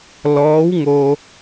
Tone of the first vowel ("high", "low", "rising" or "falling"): rising